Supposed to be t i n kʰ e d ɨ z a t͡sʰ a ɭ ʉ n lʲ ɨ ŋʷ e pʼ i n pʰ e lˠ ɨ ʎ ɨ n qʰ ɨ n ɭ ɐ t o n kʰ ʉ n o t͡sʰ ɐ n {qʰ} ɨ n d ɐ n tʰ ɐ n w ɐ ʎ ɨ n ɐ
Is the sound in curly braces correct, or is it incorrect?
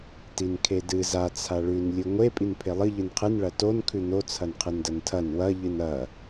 correct